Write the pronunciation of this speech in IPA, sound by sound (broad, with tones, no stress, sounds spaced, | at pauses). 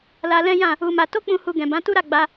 l a˧ l ɛ̃˦ j ã˦˨ | u˧ m a˧ t o˦ k͡p ũ˧ h u˧ ɡ ɛ̃˨ b ã˨˦ t u˦ ɾ a˦˨ ɡ͡b a˧